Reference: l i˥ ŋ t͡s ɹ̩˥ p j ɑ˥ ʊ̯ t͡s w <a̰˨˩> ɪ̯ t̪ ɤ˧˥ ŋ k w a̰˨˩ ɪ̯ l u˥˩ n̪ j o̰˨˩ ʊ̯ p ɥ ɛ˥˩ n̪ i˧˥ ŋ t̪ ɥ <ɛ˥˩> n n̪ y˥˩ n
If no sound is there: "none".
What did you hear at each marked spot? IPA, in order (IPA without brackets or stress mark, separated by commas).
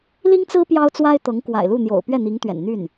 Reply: a˥, ɛ̰˨˩